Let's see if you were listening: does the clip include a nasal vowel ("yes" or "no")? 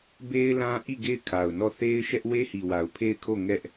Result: yes